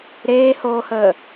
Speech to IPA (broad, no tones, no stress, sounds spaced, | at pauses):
ɾ eː h oː h əː